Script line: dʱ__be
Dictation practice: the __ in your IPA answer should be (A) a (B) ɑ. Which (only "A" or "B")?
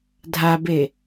A